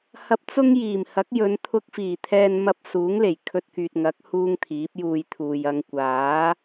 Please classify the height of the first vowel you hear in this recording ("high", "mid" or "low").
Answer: low